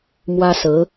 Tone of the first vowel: high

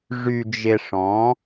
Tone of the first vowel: low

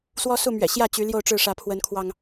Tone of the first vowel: high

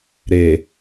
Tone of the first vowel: low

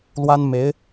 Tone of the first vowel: high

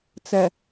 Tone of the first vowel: low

